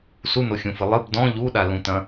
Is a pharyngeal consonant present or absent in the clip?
absent